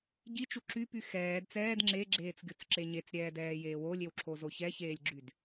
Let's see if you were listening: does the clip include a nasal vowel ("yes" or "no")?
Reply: no